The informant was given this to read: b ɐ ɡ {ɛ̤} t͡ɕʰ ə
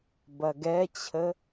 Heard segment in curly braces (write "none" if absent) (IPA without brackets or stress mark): ɛ